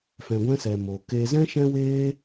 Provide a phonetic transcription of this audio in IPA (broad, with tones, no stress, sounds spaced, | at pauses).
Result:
f ɛ̃˧ ɡʷ ɛ̃˦ s ɛ˧ m o˧ k e˦ z ɛ̃˦ ʃ ɛ̃˦ w eː˦